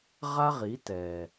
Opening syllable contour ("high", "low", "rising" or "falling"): high